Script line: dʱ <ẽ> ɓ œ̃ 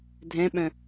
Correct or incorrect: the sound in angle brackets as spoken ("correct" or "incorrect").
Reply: incorrect